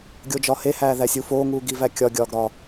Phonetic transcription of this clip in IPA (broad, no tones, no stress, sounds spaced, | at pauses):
ɡʲ o d͡ʒ ɒ h e h æː ð æ sʲ u f oː ŋ uː ɡ i v æ kʲ ɒ ɡʲ ɒː ɡ ɾ ɒ